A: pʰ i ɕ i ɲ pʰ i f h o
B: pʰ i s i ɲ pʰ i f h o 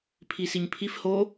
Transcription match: B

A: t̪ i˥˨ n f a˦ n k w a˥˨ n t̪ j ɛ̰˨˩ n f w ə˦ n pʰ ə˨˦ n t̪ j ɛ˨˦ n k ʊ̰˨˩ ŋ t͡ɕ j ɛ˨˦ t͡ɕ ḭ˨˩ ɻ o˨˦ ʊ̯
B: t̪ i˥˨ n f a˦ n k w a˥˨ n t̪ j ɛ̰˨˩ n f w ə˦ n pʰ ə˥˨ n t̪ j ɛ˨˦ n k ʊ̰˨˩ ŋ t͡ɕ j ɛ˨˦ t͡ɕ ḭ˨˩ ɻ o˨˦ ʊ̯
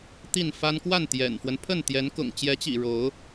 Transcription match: B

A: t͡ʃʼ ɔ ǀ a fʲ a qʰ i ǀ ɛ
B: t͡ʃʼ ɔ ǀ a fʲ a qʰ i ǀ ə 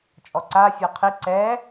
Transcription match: A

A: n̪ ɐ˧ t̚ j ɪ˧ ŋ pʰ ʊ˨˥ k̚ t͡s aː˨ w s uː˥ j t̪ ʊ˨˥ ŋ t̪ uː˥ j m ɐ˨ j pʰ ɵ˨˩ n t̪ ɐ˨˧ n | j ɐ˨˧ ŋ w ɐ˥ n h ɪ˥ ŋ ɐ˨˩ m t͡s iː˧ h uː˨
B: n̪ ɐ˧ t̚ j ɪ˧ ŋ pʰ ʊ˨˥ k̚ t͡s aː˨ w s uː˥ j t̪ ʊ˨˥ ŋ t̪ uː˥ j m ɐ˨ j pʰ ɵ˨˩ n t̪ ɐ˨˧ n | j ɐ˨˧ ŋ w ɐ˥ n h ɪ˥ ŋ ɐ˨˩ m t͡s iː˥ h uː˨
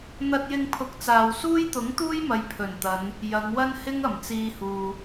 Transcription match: A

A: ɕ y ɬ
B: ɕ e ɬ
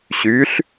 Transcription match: A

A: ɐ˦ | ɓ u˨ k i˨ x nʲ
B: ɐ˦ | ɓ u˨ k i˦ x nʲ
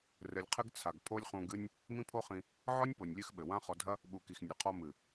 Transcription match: A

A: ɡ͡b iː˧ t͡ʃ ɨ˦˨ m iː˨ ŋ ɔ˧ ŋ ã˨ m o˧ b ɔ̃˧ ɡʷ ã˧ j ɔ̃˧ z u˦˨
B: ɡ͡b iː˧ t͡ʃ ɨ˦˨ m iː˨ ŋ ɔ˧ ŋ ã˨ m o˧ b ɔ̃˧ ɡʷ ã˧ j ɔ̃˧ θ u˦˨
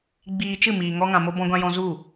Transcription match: A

